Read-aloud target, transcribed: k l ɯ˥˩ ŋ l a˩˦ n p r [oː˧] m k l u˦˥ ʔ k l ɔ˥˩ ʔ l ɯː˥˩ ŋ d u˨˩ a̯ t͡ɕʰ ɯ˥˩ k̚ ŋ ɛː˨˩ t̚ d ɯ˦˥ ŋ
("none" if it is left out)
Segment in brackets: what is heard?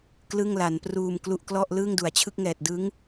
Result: uː˧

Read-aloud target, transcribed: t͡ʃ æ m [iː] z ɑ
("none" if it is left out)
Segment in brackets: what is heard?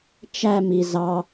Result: i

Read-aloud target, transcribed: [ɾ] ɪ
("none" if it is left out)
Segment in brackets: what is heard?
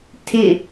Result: tʰ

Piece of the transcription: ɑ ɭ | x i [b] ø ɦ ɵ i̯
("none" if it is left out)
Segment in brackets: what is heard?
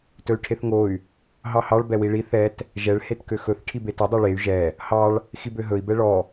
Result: b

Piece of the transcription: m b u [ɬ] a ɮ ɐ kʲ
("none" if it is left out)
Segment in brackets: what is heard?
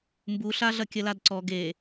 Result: ɬ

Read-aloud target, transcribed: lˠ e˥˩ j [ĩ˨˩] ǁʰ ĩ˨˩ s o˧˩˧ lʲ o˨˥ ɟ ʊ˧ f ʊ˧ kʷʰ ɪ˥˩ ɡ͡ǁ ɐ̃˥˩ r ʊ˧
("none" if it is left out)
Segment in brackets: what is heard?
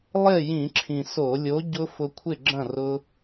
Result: ĩ˧˩˧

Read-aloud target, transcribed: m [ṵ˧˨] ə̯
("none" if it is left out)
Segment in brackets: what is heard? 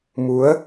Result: u˨˦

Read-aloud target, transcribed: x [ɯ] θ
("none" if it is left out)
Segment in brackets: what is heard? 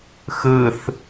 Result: ɯ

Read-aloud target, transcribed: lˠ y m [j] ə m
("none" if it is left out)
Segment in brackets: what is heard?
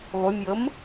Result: j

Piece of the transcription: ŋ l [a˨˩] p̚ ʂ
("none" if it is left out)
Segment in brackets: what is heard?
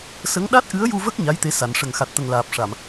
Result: aː˨˩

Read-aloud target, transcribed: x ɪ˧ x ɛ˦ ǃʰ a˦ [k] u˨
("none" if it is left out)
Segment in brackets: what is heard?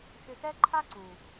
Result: ǀ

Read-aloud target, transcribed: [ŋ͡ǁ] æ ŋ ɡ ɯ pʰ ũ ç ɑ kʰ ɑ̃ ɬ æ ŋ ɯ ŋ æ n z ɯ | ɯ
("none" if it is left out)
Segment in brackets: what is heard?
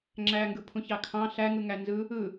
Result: ŋ͡ǁ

